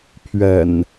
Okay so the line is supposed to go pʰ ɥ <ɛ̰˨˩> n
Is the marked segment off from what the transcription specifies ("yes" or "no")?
no